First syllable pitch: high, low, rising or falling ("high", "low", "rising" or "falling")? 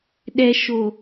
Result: low